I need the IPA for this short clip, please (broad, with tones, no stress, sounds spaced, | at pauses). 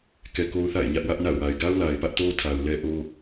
k ɛ˨ k o˦ ʊ̯ θ a̰˦˨ ɪ̯ ɲ ä˦ ʔ w ä˦ ʔ n a̰˦˨ ʊ̯ w a˨ ɪ̯ ɡ a˦ ʊ̯ l a˨ ɪ̯ p ä˦ ʔ t o˦ tʰ a˨ ʊ̯ l ɛ˦ ʔ o˦